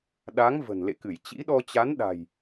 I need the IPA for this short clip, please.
ɗ a˨˦ ŋ v ə̤˨˩ n l ḛ˧˨ k ɨ˧˩ j t͡ɕ ḭ˧˥ ɗ ɔ˧ t͡ɕ a˨˦ n ɗ a̤˨˩ j

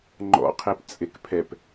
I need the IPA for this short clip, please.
ŋ͡ǃ ɔ̰ qʰ e p t͡sʼ e k pʰ ɛ p

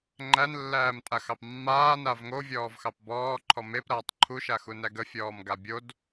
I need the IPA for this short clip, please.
ŋ͡ǃ æ n lː æː m tʼ a x ɑ p mː aː n a v ŋ o vʲ ɔː v x ɑ p b ɔː ǃʰ ɔ m e p ɾ aː tˤ ǃʰ u ʃ a x u n æ ɡ ə fʲ ɔː m ɡ a bʲ o d

